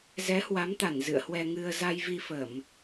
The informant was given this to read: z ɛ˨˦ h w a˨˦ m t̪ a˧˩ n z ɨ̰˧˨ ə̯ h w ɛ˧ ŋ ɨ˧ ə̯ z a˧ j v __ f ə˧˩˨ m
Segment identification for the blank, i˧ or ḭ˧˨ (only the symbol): i˧